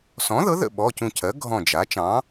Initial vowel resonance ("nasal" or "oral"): nasal